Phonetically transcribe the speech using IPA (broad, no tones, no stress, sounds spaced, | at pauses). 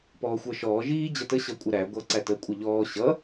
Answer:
p ɔː xʷ ə˞ ʃ ɔː ʒ iː d͡ʑ ʌ t ə ɕ ʌ kʷʼ ə ɾ æ ɡʷ ʌ ǀ æ t ə kʷʼ ə ʎ ɔː ɕ ʌ